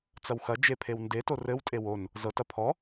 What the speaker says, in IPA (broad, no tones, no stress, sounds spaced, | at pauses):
t͡s ɐ w x ɐ d͡ʒ e pʰ e w n d e t o r ɘ w tʼ e w o n | z ɤ t ɐ pʰ ɔ